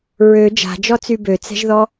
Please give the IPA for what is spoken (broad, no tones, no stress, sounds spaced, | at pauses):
ɹ ø d͡ʒ a̤ d͡ʒ ɔ t͡s y b ø t͡s ɛ̤ ʒ ð ɔ